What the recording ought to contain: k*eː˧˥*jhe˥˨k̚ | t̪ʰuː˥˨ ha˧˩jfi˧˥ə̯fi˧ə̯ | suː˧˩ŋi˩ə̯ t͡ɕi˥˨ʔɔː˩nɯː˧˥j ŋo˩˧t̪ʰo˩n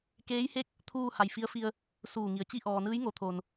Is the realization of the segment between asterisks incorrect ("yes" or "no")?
no